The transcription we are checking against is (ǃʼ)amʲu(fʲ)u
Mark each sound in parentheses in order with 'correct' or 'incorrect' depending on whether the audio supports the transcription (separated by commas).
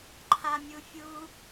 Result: incorrect, correct